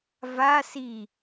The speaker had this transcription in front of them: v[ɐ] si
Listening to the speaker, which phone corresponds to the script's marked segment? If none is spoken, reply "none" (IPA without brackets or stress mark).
a